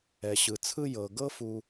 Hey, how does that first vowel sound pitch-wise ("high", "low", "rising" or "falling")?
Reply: low